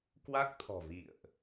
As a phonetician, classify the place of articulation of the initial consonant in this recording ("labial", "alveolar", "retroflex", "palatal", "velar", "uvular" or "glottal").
velar